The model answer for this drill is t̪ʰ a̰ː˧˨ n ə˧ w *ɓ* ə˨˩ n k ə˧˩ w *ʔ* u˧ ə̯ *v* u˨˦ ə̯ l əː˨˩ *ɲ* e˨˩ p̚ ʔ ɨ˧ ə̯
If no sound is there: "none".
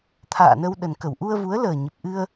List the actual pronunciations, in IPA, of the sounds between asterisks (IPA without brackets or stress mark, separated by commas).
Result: ɗ, ʔ, v, ɲ